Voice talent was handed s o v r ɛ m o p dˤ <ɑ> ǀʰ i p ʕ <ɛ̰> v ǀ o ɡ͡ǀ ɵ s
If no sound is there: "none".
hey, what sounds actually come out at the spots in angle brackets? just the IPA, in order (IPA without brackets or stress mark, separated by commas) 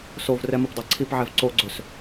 a, ɛ